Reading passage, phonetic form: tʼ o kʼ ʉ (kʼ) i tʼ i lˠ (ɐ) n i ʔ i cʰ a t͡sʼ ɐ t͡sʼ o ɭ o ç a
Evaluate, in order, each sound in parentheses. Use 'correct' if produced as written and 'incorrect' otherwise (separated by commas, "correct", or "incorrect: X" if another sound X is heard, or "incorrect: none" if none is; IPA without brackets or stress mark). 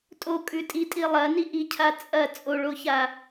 incorrect: tʼ, correct